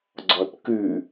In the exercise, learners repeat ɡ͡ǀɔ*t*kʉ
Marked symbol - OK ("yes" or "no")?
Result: yes